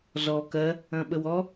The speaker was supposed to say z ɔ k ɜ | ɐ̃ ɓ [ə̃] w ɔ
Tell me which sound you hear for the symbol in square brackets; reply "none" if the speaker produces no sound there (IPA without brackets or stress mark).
ə